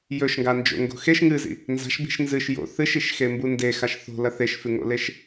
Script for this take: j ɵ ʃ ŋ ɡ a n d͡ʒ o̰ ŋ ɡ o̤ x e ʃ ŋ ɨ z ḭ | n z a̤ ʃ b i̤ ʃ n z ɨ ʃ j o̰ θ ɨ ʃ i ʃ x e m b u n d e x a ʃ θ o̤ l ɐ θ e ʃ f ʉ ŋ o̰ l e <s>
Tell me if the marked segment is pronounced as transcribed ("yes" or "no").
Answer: no